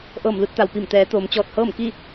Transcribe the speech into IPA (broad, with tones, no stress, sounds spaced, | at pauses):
ʔ ɤː˧˩ m l u˥˨ t̚ t̪ a˩ w p i˧˩ m t̪ ɛː˩˧ t̪ oː˩˧ m t͡ɕ ɔː˧˩ t̚ h ɤː˥˨ m k i˥˨